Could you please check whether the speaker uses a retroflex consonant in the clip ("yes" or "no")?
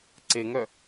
no